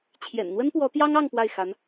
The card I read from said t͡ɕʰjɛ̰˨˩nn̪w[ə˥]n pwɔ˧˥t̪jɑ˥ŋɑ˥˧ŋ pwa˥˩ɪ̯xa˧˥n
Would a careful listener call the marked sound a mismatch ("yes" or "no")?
no